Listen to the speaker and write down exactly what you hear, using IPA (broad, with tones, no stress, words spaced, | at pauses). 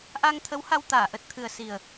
ʔa˧ŋt̪ʰə˨˦wha˧w t̪aː˧˩ʔə˨˩t̚t̪ʰɨ˨˩ə̯ si˨˩ə̯